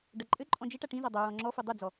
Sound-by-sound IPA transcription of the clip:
ɖɐǃʼɘǃʼɔ̃ d͡ʒeʈa ʈĩza dˤo ɹɔ̃ŋ͡ǁɔfu dˤɨd͡zɔ

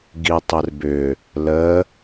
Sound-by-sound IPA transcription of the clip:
ɡitˤɪrbʏ | lə

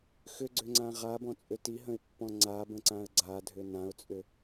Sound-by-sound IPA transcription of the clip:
xʏɡ͡ǀʏŋ͡ǀã ʁabɔ̃t͡sʼʏ tiɦə̃ɪ̯pːɔ̃ ŋ͡ǀabə̃ǀãə̯ ɡ͡ǀadʱʏ nãʊ̯t͡sʼʏ

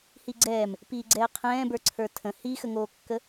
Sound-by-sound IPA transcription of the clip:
hiɡ͡ǀɛːm | piːɡ͡ǀɛːqʰɛ̃ːbə˞ ǀʰə˞tʰə̃ hixəŋoːkːə

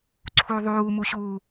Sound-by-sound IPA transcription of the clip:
ǀʰuðˤuːmuɕuː

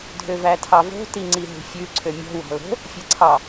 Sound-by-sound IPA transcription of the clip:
dʱøvætʰɑvo̤ tiŋ͡ǀiɦṳfʲʉ ǀʰømʲɔ̤ wɑ̤lo̤ | fʲɛǀʰɑ

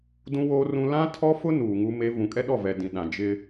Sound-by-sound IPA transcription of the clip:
dũ˦woː˦rũ˦ lã˦tʰɔ˦fʊ˦ nuː˨ŋu˦ me˦ vũ˨kʼɛ˦ɗɔ˦˨vɛ˨ dĩ˨ɗã˨ d͡ʒɪ˦

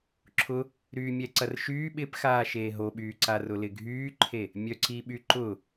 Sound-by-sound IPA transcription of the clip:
ǁʰʊ | ɾyːmʲɛǀɐrʃyː ɓɪpxaː ʃeːɦoɓyːǀa rʊlɪɡʱyːǃʰe | mʲœǀiɓyǃʊ

